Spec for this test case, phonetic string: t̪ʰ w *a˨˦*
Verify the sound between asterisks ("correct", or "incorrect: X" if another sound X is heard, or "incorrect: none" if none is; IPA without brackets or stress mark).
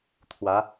correct